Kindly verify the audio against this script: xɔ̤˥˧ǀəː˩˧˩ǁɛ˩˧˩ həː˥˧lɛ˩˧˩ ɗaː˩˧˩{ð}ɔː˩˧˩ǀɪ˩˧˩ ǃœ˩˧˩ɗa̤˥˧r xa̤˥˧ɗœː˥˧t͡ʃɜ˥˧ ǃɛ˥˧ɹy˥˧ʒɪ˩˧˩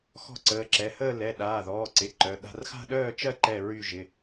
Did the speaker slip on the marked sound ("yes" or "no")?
no